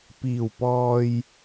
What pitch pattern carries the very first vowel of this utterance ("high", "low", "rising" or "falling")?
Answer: low